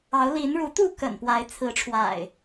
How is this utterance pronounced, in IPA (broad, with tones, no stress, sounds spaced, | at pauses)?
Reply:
ɑ˨˦ ʊ̯ l i˨˦ n ɻ u˨˦ t̪ u˥˨ k ə̰˨˩ n p w a˨˦ ɪ̯ t͡sʰ ɹ̩˨˦ ʈ͡ʂʰ w a̰˨˩ ɪ̯